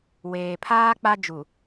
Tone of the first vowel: low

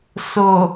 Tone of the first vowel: low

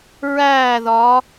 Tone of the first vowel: falling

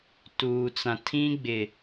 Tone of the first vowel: low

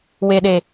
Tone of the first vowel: low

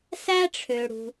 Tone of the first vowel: high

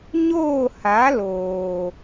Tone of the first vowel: falling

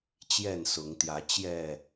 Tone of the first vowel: falling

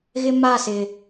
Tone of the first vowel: high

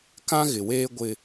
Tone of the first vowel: high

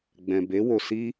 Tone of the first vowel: low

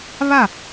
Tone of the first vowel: falling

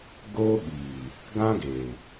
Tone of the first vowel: high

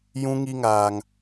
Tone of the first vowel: high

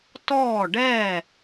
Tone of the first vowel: falling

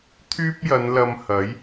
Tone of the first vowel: high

